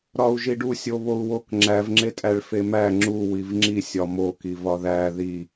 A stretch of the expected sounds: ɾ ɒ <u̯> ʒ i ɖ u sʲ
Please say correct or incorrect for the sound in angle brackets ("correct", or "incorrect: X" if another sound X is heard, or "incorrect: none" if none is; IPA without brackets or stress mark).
correct